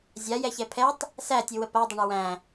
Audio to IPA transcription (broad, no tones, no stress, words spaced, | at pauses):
zʲajɛçɛ pʰɛtˤ | sætʲɯwə padˤəɳə wæ̃